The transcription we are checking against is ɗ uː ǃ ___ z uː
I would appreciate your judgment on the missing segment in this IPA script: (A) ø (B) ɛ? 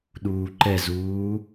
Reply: B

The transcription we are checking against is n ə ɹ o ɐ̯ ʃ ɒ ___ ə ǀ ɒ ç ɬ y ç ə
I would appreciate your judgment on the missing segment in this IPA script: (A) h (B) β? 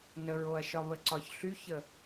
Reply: B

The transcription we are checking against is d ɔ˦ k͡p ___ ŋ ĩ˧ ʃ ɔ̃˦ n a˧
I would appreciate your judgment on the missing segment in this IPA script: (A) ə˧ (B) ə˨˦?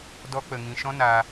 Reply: A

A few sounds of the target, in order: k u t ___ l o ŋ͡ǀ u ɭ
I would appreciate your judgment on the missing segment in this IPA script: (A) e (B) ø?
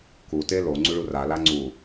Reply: A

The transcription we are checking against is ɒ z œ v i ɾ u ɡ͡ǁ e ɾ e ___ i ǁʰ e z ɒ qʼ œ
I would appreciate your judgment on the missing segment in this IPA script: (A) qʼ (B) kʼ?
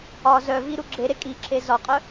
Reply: B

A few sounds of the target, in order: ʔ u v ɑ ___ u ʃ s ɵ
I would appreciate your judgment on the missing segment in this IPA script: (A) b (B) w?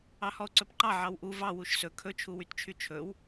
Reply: B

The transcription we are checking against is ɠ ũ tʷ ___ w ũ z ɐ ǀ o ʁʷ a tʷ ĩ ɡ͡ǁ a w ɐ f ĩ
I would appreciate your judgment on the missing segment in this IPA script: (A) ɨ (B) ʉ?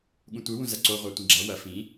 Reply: A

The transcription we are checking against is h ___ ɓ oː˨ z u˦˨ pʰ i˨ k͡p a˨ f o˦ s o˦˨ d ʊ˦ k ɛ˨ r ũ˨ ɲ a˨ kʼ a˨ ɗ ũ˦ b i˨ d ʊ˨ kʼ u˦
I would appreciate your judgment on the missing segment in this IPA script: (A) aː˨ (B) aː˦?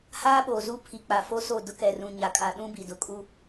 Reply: B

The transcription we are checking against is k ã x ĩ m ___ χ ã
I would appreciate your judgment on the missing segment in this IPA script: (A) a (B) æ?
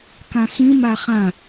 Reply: A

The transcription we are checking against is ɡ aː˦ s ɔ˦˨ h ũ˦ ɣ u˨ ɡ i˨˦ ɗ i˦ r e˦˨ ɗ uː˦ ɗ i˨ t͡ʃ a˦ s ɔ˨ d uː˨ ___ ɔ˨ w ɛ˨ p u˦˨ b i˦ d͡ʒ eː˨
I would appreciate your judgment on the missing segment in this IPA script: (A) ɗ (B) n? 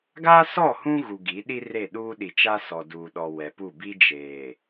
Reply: A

